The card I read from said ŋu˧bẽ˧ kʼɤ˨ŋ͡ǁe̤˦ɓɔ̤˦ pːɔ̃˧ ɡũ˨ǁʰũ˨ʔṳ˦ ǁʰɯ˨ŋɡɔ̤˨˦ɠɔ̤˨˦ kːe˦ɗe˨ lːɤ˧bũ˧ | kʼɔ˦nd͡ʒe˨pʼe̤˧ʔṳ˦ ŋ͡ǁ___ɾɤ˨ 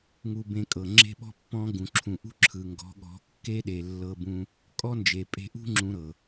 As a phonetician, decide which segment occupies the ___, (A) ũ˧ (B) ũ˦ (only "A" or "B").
A